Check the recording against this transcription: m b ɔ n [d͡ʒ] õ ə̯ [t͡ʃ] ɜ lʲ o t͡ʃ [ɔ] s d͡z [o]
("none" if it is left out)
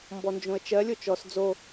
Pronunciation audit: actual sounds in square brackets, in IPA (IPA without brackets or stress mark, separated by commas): d͡ʒ, t͡ʃ, ɔ, o